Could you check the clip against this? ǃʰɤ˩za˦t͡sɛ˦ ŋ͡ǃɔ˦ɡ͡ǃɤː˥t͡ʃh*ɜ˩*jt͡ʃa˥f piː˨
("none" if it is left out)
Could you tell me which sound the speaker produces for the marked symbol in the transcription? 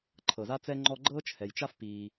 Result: ɛ˩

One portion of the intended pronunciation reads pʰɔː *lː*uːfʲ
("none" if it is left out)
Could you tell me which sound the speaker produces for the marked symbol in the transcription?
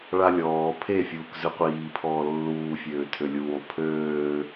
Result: lː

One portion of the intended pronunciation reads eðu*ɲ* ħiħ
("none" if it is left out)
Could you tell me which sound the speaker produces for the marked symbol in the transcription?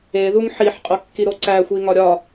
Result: ŋ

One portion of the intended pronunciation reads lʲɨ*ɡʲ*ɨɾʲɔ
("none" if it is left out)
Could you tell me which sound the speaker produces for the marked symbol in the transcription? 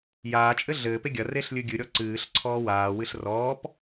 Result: ɡʲ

